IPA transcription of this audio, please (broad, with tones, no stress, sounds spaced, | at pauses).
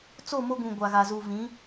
t͡s o˦˨ m o˦ ɡ ũ˨ ɡʷ a˨ ɣ a˨ z u˨ v ĩ˨˦